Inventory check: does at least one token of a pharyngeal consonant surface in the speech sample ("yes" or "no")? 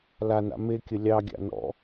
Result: no